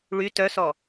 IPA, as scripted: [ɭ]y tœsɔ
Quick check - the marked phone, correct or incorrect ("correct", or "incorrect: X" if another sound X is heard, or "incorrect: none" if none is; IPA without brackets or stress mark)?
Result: correct